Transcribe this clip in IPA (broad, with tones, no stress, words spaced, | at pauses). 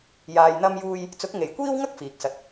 jaː˧jn̪ɐ˥mjuː˥j | t͡sʊ˨˥k̚ŋe˨˩jkʷiː˥wŋɐ˥k̚ fiː˨k̚sɐ˧t̚